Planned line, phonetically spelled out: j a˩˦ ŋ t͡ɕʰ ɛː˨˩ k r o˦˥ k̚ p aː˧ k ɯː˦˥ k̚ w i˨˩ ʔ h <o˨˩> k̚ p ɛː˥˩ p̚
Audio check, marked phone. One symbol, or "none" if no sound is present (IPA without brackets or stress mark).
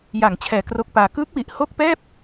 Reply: o˥˩